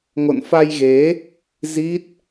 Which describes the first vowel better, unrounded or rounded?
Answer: rounded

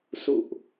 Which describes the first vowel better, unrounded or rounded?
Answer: rounded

